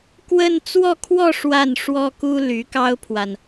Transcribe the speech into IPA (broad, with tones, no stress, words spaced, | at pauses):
kwə˥˧n t͡swɔ˥˧kʰwɔ˥˧ ʂwa˥˩nʂwɔ˥ku˥ ly˧˥kɑ˥ʊ̯pʰwa˨n